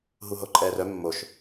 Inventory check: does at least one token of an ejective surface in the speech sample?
yes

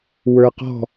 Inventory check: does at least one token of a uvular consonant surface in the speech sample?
yes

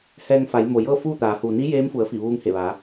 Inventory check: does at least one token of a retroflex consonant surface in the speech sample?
no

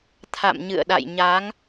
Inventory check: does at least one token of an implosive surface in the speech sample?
yes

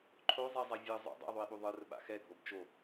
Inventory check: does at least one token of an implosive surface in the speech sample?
yes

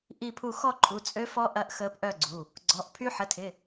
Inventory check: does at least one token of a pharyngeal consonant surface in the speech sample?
yes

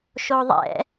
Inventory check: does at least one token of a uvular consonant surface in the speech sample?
no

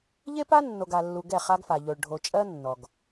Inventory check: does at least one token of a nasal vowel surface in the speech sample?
no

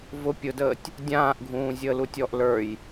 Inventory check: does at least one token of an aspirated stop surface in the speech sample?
no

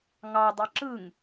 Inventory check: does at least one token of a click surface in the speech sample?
yes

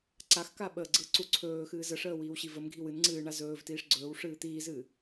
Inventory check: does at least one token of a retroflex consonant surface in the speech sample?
yes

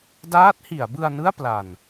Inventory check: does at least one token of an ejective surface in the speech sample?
no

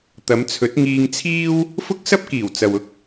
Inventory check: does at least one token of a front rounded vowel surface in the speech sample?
no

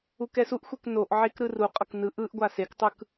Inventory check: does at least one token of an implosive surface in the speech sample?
no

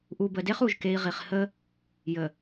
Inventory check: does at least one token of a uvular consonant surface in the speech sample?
yes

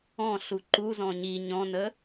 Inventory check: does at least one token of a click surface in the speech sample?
yes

